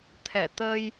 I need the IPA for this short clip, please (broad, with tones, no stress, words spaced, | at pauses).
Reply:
t̪ʰɛ˧˩ t̪ə˧j